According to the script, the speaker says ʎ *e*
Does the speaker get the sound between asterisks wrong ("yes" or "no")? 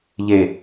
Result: no